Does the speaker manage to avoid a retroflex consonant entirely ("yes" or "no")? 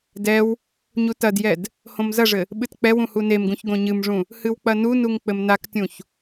no